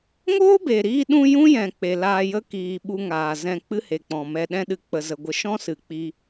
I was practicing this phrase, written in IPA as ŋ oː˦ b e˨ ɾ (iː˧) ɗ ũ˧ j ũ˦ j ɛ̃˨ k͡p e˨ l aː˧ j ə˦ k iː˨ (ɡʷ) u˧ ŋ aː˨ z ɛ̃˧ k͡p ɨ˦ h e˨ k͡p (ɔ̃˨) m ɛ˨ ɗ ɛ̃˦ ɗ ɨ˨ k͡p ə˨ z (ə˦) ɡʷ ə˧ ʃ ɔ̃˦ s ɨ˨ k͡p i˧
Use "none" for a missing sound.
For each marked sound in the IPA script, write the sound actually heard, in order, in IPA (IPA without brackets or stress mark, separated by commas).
iː˧, ɓ, ɔ̃˨, ə˨